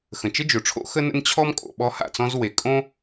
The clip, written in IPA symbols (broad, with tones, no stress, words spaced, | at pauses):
xə̃˩t͡ʃə˥d͡ʒo˩ʈ͡ʂʰo̰˥ xə˥nə̰˥n t͡ɕʰɔ˥mkʼo̰˩ ɓɔ˥ha̰˩t͡sɔ̃˥z we˩kʼõ˥